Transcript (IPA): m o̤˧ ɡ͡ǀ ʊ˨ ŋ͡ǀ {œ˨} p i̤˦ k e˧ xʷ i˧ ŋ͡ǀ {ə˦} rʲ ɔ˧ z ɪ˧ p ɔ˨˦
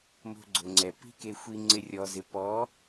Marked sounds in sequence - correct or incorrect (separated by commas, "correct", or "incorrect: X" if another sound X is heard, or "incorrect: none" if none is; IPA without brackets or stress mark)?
incorrect: ɛ˨, incorrect: ɪ˦